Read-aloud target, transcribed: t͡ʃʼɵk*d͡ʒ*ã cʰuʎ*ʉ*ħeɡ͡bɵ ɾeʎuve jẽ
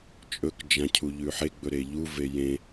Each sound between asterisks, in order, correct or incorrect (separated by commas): correct, correct